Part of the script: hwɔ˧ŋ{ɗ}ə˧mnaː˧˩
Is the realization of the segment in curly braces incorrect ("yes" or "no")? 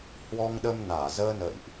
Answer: no